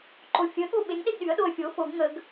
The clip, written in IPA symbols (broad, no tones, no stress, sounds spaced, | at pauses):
ǃ o fʲ ə ɠ o ɓ e ŋ ɗ e ɡ ɗ y ə̯ ɗ o ə̯ fʲ o f o ɡ ŋ ə ɡ